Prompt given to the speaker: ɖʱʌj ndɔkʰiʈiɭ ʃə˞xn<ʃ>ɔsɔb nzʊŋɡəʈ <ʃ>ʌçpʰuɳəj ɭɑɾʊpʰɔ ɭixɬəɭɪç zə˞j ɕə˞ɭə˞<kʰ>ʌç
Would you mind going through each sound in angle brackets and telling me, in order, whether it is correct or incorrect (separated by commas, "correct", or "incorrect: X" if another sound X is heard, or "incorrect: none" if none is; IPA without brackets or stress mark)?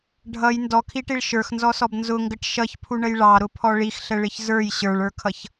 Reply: incorrect: z, correct, correct